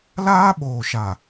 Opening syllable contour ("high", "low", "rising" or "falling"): high